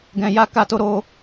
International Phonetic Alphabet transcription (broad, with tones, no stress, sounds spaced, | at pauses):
ɡ ɛ̃˨ j a˧ k a˦ t o˦ ɾ o˦